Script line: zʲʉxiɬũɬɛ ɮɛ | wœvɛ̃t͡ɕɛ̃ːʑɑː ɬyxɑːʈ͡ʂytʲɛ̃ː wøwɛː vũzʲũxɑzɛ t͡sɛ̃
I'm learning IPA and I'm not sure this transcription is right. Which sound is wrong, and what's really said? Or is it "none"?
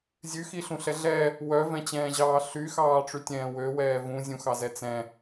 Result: none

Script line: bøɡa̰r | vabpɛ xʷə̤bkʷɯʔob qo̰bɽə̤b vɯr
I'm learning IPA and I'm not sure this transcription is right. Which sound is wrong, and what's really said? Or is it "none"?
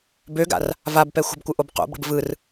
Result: none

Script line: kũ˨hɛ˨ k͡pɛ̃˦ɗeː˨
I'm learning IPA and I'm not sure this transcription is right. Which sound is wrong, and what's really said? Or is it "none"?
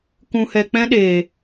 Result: none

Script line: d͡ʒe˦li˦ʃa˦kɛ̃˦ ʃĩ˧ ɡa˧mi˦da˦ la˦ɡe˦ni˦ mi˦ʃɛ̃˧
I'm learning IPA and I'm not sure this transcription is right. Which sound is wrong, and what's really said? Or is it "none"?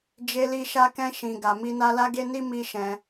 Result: d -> n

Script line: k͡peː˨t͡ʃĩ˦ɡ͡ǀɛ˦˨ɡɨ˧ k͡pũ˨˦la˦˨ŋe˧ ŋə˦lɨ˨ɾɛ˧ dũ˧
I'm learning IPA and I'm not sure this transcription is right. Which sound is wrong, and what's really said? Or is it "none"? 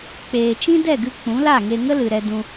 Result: ɡ͡ǀ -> d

